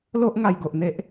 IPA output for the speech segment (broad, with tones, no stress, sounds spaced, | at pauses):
l o˦ ʔ ŋ a˧ j ɡ o˨ ʔ n̪ e˦ ʔ